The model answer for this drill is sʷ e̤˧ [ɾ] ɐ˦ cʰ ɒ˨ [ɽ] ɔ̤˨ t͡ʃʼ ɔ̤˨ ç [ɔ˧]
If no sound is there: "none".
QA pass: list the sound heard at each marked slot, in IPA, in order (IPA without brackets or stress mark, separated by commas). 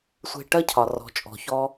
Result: ʈ, r, ɔ˧